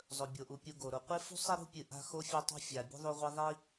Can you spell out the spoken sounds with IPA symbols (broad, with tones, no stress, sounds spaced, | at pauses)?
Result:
zˤ ɵ˩ bʲ o˩ ʔ u˩ pʲ u˨ ɡ o˩ ɾ o˨ qʷ e˥ f ṳ˥ sˤ e˥ ɾ ṳ˥ pʲ ɨ˨ ʔ a̤˦ x o˦ fʲ ɵ˦ tˤ ṳ˦ fʲ a˨ bʲ ṳ˥ ðˤ u˦ ʁʷ i˦ ðˤ i˥